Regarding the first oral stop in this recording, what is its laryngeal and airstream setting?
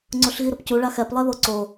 click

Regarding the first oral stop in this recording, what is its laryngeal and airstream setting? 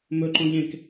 click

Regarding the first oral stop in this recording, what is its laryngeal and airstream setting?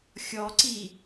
click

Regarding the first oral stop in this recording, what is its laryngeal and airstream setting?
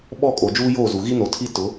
implosive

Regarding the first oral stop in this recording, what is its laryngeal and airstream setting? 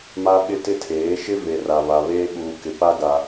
implosive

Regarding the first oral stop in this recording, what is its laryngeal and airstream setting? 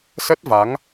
plain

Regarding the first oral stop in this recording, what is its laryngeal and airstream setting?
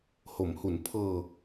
aspirated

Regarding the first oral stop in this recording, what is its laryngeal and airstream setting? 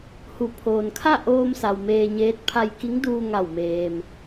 aspirated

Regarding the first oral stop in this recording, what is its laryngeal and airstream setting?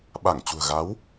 implosive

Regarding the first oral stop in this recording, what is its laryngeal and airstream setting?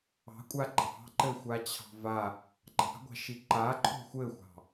ejective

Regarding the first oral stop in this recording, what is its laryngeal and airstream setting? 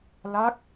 plain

